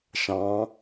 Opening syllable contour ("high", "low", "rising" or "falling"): rising